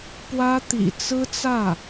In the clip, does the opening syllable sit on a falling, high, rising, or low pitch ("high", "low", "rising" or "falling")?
high